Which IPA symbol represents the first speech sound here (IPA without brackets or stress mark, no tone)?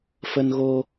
f